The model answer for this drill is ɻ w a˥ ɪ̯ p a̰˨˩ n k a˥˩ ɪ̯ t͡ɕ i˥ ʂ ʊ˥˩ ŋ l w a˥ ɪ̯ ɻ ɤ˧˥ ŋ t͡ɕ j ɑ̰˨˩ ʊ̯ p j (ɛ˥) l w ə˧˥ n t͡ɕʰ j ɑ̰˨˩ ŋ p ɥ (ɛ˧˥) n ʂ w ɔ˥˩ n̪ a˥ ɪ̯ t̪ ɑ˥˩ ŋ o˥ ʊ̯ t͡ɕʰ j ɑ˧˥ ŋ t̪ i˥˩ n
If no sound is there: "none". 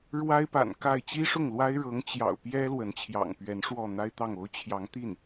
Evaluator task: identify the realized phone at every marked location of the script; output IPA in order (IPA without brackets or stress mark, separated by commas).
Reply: ɛ˥, ɛ˧˥